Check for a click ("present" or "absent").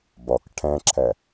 present